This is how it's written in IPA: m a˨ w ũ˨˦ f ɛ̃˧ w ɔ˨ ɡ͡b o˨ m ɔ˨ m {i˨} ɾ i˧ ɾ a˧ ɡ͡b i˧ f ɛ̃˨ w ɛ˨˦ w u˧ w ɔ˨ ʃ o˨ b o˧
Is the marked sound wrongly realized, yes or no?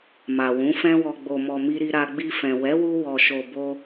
yes